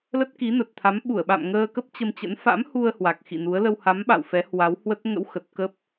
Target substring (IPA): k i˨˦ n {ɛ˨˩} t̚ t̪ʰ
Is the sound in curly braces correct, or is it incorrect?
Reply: incorrect: ə˨˩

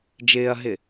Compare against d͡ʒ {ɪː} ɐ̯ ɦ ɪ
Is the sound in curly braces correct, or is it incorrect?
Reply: correct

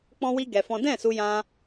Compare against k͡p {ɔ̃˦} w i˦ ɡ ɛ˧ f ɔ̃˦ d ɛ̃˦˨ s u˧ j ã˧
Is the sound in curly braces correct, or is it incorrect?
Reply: correct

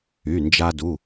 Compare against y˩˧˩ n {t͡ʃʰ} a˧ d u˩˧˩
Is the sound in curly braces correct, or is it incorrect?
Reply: incorrect: d͡ʒ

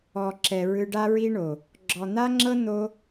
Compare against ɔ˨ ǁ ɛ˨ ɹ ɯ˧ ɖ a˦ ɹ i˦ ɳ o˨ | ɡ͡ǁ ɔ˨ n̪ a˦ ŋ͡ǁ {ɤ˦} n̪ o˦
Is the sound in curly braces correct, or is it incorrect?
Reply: correct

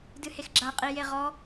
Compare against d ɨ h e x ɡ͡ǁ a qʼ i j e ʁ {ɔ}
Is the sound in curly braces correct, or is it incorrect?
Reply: correct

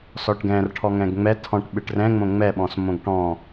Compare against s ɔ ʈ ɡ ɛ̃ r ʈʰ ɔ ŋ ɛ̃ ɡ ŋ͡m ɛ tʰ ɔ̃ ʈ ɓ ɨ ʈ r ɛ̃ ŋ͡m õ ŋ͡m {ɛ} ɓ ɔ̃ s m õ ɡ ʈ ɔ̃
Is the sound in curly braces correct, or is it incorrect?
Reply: correct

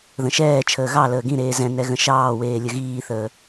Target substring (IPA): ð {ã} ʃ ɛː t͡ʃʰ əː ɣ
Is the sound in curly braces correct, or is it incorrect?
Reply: incorrect: ə̃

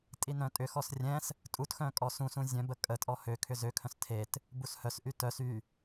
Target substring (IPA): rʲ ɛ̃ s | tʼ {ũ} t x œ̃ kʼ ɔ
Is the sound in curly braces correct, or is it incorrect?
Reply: incorrect: u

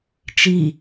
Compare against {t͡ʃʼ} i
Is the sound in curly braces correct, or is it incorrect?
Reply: incorrect: t͡ʃ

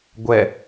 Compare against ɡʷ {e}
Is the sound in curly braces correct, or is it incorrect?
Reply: incorrect: ɛ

